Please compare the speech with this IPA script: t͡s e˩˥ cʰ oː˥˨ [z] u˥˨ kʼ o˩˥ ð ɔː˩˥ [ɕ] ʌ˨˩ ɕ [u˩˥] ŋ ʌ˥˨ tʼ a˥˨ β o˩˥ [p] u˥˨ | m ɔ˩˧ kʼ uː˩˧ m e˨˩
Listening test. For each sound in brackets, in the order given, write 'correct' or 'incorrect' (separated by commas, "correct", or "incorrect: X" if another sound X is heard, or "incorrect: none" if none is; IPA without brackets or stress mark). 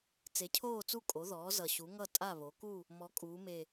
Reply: incorrect: t͡s, incorrect: z, correct, incorrect: k